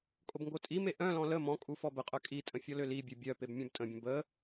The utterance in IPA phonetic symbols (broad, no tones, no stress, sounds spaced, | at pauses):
kʼ o b ŋ ɡ o tʼ i m e ʔ œ̃ l ɔ̃ l ə m ɔ̃ kʼ u f ɔ b ə qʼ œ kʼ i tʼ ə̃ fʲ ɔ l ø l i bʲ ø bʲ œ p e b mʲ œ̃ b tʼ ə̃ bʲ ə̃ b ə